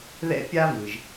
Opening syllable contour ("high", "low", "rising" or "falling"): high